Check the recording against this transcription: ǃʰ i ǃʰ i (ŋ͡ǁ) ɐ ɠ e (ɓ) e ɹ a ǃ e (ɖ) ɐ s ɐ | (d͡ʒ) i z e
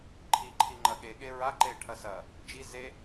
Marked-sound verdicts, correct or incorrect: incorrect, incorrect, incorrect, correct

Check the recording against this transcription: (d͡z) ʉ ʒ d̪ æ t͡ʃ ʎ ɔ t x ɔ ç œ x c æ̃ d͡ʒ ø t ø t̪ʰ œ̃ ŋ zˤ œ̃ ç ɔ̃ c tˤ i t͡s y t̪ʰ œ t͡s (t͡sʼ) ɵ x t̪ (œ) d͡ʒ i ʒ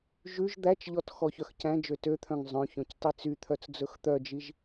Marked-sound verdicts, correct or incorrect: incorrect, incorrect, correct

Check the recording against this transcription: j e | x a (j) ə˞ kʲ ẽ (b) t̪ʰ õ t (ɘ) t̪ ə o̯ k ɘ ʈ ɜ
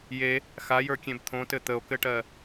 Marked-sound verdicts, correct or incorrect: correct, correct, correct

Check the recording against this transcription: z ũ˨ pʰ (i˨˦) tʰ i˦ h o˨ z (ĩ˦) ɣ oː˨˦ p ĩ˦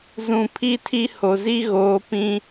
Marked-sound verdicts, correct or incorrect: incorrect, incorrect

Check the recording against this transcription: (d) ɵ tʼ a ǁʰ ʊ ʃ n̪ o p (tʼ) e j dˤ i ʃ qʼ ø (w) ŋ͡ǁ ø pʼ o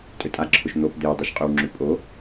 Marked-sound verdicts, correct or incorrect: incorrect, incorrect, correct

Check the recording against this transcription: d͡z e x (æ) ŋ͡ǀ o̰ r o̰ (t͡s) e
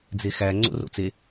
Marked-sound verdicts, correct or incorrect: correct, correct

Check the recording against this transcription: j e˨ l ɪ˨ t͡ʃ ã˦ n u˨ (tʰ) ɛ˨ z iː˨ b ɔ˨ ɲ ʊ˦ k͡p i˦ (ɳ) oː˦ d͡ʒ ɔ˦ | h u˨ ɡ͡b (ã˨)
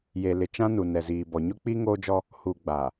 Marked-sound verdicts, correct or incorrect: incorrect, incorrect, incorrect

